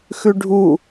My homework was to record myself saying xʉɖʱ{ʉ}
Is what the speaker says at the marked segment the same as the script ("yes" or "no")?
no